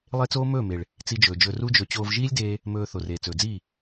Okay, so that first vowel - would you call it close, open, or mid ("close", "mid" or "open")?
mid